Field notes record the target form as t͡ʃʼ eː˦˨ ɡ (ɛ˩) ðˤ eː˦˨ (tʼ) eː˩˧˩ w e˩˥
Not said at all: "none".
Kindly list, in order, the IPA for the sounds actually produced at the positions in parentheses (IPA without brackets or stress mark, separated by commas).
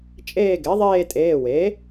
ɛ˩˥, tʼ